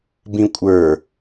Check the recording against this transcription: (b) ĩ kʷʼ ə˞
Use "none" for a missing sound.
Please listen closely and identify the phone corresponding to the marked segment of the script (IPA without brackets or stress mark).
b